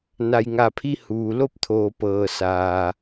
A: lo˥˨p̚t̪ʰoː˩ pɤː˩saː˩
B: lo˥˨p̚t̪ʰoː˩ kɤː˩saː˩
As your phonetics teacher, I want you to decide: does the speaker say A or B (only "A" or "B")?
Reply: A